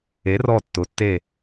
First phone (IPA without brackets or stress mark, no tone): e